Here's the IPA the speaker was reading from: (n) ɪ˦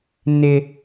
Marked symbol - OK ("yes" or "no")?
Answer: yes